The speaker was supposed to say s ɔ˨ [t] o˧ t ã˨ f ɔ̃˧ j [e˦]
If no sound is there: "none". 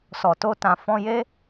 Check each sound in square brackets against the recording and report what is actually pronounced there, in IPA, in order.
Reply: t, e˦

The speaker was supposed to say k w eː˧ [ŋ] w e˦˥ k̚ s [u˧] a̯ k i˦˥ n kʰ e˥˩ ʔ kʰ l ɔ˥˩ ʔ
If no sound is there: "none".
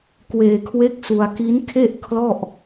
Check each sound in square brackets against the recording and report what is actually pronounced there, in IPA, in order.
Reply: kʰ, u˧

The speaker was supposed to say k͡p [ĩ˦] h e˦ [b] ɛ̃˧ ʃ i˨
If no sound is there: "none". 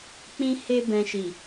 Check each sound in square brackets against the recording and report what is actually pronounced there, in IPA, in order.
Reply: ĩ˦, b

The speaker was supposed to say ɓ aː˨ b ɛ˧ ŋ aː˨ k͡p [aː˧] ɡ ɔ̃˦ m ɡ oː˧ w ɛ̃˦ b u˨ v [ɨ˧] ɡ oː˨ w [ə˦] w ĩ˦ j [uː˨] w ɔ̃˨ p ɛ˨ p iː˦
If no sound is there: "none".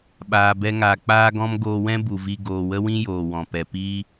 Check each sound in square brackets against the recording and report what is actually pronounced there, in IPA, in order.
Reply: aː˦, i˧, ə˦, oː˨

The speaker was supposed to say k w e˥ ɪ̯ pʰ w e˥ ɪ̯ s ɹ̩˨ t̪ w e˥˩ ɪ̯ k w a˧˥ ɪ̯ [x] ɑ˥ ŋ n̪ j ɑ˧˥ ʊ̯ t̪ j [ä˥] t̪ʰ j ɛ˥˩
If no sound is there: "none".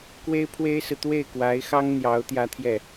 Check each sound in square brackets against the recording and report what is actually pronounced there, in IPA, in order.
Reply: x, ä˥

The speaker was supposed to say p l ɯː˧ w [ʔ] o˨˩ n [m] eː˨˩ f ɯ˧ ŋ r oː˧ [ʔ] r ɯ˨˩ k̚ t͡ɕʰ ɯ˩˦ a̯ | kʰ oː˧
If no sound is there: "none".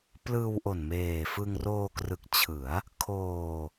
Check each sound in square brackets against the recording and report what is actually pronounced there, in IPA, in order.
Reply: ʔ, m, k

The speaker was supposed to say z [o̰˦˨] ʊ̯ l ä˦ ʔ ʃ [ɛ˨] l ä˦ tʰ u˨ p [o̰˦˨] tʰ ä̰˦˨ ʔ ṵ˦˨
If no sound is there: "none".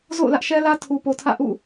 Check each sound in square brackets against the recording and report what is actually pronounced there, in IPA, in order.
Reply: o̰˦˨, ɛ˦, o˨

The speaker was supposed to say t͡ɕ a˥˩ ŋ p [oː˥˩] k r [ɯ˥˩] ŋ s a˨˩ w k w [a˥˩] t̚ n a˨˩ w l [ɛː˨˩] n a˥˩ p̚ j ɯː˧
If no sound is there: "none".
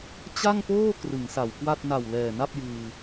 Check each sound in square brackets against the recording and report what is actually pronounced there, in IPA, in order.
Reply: oː˥˩, ɯ˩˦, a˥˩, ɛː˨˩

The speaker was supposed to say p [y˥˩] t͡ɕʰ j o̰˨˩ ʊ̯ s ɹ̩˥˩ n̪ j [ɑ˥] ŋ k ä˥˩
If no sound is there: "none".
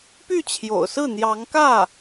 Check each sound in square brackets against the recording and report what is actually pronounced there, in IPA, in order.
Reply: y˥˩, ɑ˧˥

